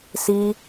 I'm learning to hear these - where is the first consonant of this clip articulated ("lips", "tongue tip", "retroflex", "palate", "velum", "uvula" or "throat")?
tongue tip